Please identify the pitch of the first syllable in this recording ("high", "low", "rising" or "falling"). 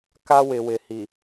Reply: high